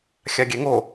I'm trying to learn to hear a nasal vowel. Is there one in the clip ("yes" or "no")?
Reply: no